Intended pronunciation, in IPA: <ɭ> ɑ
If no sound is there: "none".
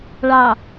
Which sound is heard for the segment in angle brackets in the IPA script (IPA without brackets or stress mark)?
ɭ